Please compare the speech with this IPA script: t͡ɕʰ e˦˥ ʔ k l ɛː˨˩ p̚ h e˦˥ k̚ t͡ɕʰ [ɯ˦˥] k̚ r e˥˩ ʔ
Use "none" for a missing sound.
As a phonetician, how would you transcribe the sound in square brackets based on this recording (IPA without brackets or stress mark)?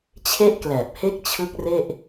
ɯ˦˥